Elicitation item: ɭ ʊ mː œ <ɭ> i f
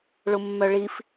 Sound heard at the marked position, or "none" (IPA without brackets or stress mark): ɭ